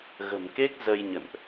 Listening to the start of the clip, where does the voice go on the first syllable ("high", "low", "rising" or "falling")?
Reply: low